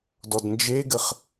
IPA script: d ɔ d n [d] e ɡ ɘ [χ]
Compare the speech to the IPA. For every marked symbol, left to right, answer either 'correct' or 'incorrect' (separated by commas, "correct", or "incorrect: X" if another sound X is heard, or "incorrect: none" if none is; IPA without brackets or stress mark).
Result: incorrect: d͡ʒ, correct